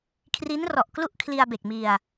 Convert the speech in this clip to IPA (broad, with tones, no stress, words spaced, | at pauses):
kʰri˦˥nrɔ˨˩ʔ klu˥˩ʔ kʰli˧a̯be˨˩k̚ mi˧a̯